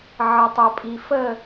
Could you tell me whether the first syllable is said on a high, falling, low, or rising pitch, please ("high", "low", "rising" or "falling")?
low